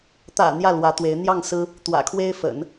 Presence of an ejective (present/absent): absent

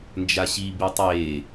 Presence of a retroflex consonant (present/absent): absent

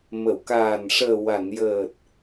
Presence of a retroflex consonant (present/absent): present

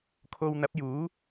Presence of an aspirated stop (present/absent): present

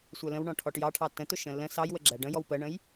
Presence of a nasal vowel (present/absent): present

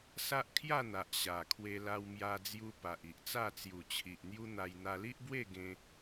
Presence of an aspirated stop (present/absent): present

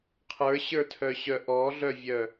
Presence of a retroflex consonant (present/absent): absent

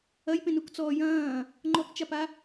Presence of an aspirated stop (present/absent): absent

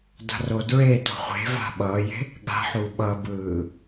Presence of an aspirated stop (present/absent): absent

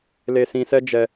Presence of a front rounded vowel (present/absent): absent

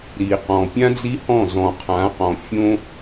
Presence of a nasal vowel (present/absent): present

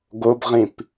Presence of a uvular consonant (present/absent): present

